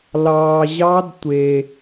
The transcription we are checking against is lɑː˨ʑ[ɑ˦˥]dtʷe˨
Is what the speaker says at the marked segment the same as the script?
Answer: yes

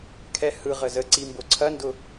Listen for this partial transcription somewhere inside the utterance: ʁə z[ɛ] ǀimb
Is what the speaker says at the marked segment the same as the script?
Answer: no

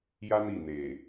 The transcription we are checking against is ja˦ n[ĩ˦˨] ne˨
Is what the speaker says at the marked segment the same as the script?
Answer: no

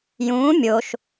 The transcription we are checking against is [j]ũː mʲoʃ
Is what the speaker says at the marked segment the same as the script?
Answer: yes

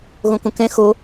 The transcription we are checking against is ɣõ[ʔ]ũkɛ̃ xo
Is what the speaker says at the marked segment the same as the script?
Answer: no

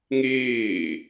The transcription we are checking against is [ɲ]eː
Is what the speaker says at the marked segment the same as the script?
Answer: no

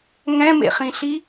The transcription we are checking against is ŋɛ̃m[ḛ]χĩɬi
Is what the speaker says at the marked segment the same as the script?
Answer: yes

